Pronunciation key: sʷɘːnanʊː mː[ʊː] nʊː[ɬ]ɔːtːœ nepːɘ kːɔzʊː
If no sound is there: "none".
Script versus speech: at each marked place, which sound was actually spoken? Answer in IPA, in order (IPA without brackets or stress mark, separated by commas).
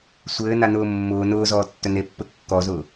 ʊː, z